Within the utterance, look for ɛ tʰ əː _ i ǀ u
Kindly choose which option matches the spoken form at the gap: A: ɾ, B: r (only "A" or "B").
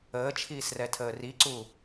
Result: B